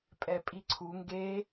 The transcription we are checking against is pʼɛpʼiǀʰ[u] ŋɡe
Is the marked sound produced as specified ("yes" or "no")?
yes